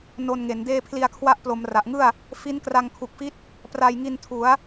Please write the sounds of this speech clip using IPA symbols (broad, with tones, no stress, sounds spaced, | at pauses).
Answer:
n o˧ n ŋ e˩˦ n d eː˥˩ pʰ l i˧ a̯ kʰ w a˦˥ ʔ p l o˩˦ m r a˨˩ ʔ ŋ ɯ˥˩ a̯ | f i˦˥ n k r a˧ ŋ kʰ u˨˩ k̚ f i˦˥ t̚ | p r a˧ j ŋ i˧ n tʰ u˩˦ a̯